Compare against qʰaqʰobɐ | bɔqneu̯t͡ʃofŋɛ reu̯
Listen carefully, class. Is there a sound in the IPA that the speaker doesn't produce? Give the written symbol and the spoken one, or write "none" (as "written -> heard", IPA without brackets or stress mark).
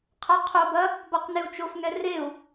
none